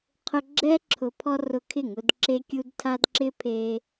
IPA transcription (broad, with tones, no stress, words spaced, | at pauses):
qʰʊ˧ɡ͡ǁɛ˦ ǁʰʊ˧ pʰɔ˦rʊ˧kʰɪ˦˨ŋʊ˧d ǁe˧kʲu˧d tʰa˧dǁɪ˦pʰe˧